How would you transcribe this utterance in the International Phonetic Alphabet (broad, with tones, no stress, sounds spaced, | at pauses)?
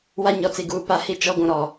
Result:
w a˦ ɲ ɔ˨ t͡s i˨ ɡ uː˨ p a˦ h i˦ t͡ʃ ɔ˦ ɡʷ ũ˨ ɾ ɔ˨